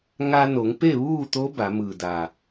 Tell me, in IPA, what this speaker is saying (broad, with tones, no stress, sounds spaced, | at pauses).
ŋ a˧ n o˩˧ ŋ p e˥˨ ʋ uː˥˨ t̪ o˧˥ b a˩˧ m ɯː˧˩ d a˧˩